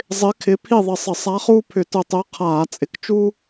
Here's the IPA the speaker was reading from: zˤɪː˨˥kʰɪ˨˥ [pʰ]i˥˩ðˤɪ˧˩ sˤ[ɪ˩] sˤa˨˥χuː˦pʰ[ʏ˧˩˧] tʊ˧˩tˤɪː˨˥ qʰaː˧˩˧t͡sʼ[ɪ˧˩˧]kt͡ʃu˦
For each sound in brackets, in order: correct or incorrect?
correct, incorrect, correct, incorrect

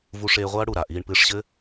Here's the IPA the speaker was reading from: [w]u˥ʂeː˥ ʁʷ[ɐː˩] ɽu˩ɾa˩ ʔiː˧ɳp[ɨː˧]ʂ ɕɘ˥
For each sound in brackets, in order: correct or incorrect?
incorrect, incorrect, correct

